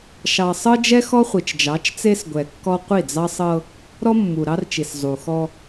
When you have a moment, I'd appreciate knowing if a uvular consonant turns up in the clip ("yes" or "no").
yes